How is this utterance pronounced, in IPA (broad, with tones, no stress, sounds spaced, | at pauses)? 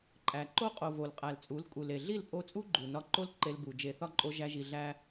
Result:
ǃʼ æ˨ ǃ o˧ qʼ o˨ v o˨ l qʼ æ˨ l t͡sʼ u˨˦ l kʼ u˨ l e˨ ɮ i˦˨ l pʼ o˧ t͡sʼ u˦ ɡ͡ǃ u˨ n ɒ˧ ǃ o˦ l ǃ e˧ l b u˨ d͡ʒ e˨ θ ɒ˦ ǃʼ o˧ ʒ æ˧ ʒ i˨ ɮ æ˦